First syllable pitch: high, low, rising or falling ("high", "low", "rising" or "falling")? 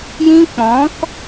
high